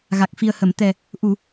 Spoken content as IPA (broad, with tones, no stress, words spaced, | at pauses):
ɣa˨˩k̚fi˨˩ə̯hə˨˩˨mt̪ɛ˨˩ | ʔu˨˩˨